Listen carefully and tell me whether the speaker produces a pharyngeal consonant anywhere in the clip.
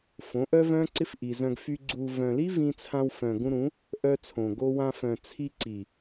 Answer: no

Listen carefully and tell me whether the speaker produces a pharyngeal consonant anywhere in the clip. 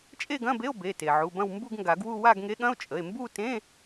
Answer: yes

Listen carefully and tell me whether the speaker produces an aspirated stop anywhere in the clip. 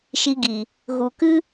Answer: no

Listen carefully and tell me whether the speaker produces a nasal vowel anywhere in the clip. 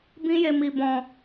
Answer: yes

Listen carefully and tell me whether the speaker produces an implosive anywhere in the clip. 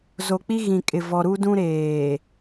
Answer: no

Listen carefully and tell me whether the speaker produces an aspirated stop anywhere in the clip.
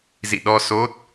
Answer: no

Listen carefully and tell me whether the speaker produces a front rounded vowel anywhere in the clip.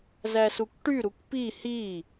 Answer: yes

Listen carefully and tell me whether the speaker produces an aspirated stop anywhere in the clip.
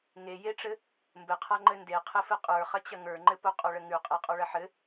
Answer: yes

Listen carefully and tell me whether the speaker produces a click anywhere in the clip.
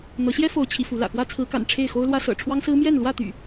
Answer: no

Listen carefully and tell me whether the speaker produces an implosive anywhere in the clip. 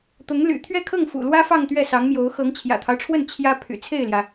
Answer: no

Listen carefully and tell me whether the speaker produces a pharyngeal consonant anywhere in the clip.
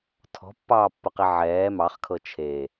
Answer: yes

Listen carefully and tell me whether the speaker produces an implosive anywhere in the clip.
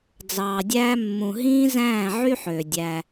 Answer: no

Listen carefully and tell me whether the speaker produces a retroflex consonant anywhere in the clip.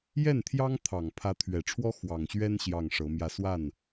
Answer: yes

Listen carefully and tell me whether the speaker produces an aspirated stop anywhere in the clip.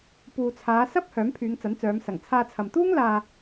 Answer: yes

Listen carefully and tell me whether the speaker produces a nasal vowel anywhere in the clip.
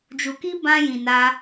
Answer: yes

